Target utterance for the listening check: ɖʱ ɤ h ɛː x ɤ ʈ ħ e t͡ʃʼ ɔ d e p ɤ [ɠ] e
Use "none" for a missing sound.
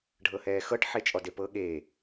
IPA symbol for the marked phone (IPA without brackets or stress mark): ɠ